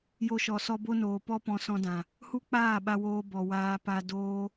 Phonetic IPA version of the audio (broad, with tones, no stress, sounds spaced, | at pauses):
j o˧ ʃ ɔ˨ s ɔ˧ b o˦ n oː˨ p ɔ˦ p ɔ̃˧ s ɔ̃˧ d ã˨ | h u˦ k͡p aː˦˨ ɓ a˧ w oː˧ b ɔ˨ w aː˧ p a˧ d oː˦